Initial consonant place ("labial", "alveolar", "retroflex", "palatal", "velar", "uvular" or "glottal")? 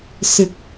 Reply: alveolar